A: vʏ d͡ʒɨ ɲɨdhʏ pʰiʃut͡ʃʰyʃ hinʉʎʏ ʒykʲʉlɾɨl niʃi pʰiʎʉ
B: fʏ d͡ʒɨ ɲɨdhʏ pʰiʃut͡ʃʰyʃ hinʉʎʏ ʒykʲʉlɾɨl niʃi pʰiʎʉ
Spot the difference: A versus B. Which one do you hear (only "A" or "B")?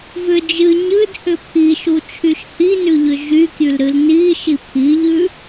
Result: A